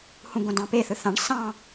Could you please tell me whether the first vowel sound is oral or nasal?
nasal